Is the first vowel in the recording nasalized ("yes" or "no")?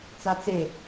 no